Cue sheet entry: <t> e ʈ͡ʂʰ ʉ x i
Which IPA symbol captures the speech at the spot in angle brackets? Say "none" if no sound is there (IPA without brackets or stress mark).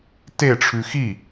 t